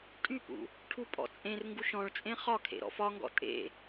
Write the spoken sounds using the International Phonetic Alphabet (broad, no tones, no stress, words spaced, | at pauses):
tʼypṵ | ʈʰupʼɔ̰t͡sʼẽrŋɡuʃ ɔ̃ɭt͡sʼẽ χɒkʰḛ ɾɔ̰fɒŋɡɔ̰ tʼḛ